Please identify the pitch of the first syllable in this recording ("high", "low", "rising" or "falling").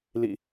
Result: low